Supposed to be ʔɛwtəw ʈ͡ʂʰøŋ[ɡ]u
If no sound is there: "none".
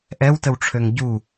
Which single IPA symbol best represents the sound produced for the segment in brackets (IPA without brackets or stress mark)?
ɟ